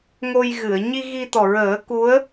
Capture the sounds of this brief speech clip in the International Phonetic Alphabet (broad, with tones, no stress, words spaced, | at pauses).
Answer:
ŋo˧j ɣɨ˨˩˨ə̯ ɲi˧ ɣi˧t̪ɔ˨˩ɹəː˨˩˦ ku˧˥ə̯